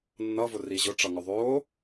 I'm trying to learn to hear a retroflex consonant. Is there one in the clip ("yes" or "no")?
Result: yes